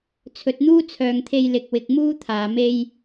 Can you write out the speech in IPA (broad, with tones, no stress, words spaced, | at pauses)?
t͡sʰɵ˨t̚n̪uː˥t͡sʰœː˨ŋt̪ʰe˧j lɪ˨k̚wɪ˨k̚muː˥ t̪ʰaː˨me˥j